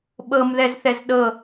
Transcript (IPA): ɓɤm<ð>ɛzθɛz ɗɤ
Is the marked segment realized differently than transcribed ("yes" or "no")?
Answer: no